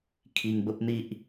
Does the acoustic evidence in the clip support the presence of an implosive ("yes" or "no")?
no